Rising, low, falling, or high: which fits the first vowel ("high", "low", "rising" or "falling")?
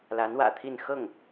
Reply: rising